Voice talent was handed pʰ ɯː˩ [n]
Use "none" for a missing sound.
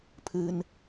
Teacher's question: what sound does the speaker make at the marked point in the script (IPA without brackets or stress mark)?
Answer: n